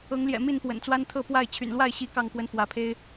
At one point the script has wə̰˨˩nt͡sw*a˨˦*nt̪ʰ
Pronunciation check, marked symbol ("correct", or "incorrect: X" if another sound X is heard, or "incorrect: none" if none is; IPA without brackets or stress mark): incorrect: a˦